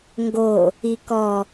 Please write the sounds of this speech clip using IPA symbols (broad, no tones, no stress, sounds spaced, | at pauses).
ŋ ɡ o | i k ɔ